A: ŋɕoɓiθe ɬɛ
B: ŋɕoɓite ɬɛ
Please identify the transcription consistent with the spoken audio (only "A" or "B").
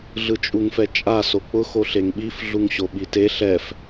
B